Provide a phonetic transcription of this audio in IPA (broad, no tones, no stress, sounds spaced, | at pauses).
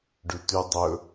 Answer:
ɖ ʉ t ʉ dˤ ɵ